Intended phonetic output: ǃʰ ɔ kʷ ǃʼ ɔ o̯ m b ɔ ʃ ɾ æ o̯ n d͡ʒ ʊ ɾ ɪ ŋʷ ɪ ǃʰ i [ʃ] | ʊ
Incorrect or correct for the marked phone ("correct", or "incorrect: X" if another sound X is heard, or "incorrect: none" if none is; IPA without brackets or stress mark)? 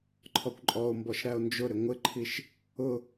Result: correct